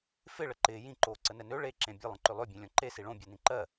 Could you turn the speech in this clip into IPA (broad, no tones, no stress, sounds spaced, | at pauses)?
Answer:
f ɪ ɭ ə ǃ ɪː j ĩ ǃ oː ǀ ə n ɛ n ø ɭ e ǁ ẽ bʲ ə lˠ ə̃ ǃ ø lˠ ø bʲ ẽ lʲ ɔ̃ ǃ e s i ɭ õ bʲ ɜ n ĩ ǃ ɜ